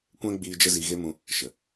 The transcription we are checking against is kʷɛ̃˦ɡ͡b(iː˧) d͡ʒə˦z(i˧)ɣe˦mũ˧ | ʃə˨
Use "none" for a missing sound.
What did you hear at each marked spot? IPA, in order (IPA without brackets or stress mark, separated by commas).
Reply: iː˧, i˧